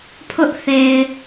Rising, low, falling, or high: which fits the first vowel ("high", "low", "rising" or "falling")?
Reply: high